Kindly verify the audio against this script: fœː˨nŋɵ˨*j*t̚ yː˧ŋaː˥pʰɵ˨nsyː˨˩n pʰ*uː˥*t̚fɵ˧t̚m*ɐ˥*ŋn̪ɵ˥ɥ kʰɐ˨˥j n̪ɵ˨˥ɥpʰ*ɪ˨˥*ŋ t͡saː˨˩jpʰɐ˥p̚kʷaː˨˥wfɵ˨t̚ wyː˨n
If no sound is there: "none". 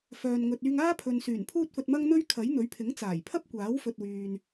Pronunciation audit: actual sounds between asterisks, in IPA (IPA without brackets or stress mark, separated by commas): none, uː˥, ɐ˥, ɪ˨˥